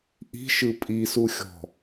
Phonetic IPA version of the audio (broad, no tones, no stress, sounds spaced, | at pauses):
ʔ i̤ ʃ ɯ pʼ i s u xʲ ɔ̤